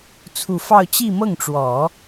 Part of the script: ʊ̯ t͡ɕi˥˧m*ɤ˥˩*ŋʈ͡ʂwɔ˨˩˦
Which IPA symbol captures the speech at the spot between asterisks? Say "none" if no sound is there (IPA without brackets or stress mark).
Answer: ɤ˥˩